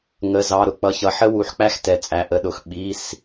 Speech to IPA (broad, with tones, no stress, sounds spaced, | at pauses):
ŋ ə˩˧˩ z ɑ˩˧˩ ɾ ʊ˩˥ k͡p ʌ˩˧˩ ç ʌ˩˥ ħ ə˦ w u˩˥ ħ k͡p æ˦ x t ɛ˩˧˩ t͡sʼ æ˩˧˩ ʔ ə˩˥ ɗ ʊ˩˧˩ x ɓ i˩˧˩ s